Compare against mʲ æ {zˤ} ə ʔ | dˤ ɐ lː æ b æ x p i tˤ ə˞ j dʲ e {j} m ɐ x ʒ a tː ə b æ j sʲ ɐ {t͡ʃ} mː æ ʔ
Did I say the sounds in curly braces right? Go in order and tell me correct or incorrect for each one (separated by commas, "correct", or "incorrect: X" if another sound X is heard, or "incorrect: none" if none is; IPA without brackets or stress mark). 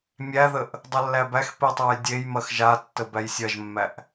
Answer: incorrect: ð, correct, incorrect: ʒ